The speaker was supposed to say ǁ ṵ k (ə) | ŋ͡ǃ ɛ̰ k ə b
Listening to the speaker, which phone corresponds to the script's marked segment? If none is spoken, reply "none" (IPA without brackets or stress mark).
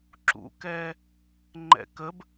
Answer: ɛ